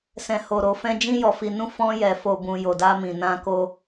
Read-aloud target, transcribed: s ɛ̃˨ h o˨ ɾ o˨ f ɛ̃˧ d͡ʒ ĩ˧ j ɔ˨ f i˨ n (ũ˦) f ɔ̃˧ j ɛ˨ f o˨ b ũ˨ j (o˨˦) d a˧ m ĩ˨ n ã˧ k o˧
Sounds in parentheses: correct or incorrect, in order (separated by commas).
incorrect, incorrect